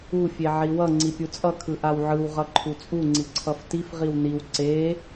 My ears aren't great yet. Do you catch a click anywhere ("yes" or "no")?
yes